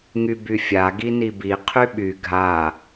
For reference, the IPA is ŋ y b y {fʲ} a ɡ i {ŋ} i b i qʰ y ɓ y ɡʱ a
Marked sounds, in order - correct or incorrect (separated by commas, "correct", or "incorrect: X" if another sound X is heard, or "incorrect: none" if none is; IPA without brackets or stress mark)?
correct, incorrect: n